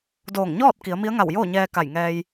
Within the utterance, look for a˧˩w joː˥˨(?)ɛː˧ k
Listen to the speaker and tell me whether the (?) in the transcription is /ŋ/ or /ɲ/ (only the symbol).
ɲ